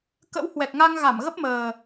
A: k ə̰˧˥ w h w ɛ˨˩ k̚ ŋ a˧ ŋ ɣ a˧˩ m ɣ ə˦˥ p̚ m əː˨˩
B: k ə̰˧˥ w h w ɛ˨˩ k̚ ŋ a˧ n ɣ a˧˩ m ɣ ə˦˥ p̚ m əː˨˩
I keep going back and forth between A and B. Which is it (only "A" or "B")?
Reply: A